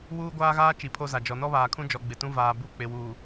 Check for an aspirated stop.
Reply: present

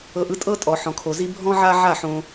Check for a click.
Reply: absent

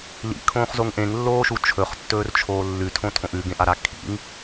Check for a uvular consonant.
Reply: present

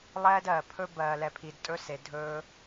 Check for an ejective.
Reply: present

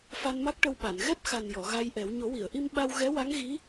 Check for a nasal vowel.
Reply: absent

